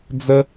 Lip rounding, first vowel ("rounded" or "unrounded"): unrounded